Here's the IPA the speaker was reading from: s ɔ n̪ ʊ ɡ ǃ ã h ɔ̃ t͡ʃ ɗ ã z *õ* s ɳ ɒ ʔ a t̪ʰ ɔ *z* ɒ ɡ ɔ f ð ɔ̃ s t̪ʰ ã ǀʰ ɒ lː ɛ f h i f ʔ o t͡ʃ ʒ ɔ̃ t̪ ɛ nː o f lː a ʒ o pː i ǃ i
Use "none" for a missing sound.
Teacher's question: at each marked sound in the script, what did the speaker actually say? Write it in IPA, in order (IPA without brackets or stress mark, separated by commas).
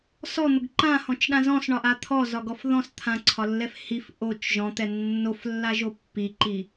ɔ̃, z